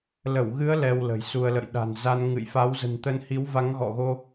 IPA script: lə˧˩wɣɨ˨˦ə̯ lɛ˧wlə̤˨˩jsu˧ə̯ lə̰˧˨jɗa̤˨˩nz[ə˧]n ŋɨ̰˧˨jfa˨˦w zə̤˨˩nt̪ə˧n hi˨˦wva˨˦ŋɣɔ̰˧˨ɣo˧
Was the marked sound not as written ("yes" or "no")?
yes